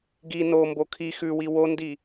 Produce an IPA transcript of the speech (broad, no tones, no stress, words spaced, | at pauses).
ɡi nombo kʰi xʉwi wondi